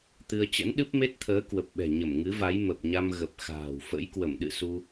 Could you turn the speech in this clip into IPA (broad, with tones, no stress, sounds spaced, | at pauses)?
t̪ ɨ˧ ə̯ t͡ɕ ə̰˧˥ n ɗ ɨ˦˥ p̚ m e˦˥ t̚ t̪ʰ əː˨˦ k w ə˨˩ p̚ ɓ ɛ̤˨˩ ɲ ə˧˩ m ŋ ɨ˨˦ v a˨˦ j m ə˨˩ p̚ ɲ a˧ m ɣ ə˨˩ p̚ x a̤ː˨˩ w f ə̰˧˥ j k w ə˧˩ m ɗ ɨ̰˧˨ s u˧